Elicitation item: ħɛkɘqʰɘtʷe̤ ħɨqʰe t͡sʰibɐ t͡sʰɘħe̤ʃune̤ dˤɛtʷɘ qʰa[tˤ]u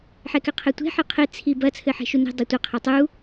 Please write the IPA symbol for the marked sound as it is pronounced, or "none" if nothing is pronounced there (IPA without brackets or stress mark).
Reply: tˤ